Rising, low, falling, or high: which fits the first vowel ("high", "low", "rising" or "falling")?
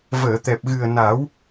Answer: low